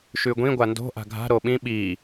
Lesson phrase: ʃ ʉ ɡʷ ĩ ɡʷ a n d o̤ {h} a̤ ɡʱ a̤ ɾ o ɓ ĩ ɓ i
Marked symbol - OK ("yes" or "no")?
no